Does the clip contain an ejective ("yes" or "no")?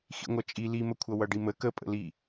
yes